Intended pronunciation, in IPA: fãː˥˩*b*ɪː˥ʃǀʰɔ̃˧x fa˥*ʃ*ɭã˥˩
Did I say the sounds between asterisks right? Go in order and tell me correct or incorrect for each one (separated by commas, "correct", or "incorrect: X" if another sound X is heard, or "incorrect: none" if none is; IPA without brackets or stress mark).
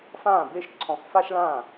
correct, correct